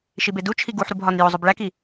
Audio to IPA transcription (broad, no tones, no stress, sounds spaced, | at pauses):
ʃ i b e d u t͡ʃʰ i ɡ u ħ ɾ u b ɦ ɒ n j o zˤ o b ɭ æ k i